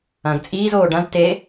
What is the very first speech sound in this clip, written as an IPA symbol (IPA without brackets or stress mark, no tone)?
ɐ̃